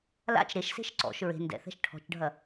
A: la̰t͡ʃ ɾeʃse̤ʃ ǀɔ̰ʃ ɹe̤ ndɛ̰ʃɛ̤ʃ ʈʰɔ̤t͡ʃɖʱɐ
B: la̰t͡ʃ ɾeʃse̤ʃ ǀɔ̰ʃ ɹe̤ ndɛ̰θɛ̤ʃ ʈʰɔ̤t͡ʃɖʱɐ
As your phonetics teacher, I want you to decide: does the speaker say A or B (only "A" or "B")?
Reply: B